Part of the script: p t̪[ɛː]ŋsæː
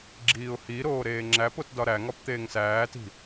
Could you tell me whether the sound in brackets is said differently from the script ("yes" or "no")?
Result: yes